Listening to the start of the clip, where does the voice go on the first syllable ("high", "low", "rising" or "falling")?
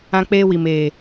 high